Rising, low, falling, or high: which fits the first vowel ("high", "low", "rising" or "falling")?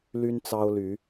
high